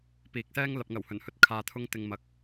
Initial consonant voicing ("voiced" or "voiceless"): voiceless